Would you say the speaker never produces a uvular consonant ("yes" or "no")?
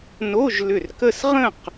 no